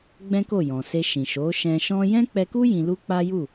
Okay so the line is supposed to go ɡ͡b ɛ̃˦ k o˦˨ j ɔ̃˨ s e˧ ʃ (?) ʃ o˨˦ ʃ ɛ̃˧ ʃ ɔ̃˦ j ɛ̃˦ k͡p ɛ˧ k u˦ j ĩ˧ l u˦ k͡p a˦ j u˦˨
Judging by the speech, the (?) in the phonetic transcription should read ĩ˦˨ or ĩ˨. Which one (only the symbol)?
ĩ˨